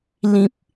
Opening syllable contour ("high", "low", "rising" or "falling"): high